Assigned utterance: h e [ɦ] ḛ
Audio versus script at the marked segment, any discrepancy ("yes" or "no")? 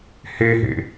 no